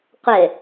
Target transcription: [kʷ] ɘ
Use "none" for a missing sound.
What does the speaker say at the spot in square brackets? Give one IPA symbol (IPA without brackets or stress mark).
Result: qʷ